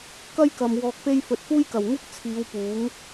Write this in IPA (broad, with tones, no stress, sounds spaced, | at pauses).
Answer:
k ɐ˥ j k ɐ˨ m w ɔː˧ k̚ p e˥ j f ɵ˨ t̚ f uː˥ j k ɐ˨˩ w ŋ ɪ˥ k̚ t͡sʰ iː˨˧ w p uː˨˥ ŋ